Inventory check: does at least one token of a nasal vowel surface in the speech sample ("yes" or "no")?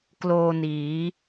no